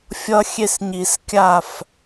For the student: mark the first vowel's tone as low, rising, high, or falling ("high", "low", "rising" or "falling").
high